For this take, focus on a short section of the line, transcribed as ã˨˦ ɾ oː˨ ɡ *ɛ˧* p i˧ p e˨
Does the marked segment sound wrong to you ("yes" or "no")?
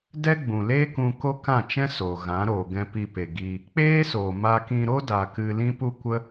yes